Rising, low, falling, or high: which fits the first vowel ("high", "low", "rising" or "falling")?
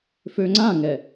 low